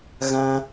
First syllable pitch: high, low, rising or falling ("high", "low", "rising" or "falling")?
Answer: high